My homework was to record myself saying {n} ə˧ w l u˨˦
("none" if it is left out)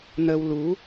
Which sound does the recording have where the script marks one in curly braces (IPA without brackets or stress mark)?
n